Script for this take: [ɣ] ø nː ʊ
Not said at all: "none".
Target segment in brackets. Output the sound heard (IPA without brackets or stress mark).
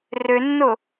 r